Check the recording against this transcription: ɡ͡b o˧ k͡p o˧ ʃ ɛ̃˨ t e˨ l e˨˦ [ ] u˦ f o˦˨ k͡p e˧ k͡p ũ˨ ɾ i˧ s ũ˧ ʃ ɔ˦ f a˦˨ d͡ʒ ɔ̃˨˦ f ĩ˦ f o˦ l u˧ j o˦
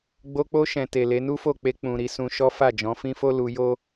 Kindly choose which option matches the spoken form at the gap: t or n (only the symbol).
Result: n